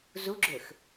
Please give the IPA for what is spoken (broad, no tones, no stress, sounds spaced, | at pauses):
z u ɡ͡ǁ ø x